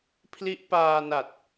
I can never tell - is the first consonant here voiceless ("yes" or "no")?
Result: yes